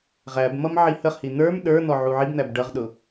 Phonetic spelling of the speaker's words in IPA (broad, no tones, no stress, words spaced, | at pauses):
ʁæbmʌm ʕihəχhi n̪ə˞m ɗə˞ n̪ɔʕuʕibn̪æb ɖʌʁɗʊ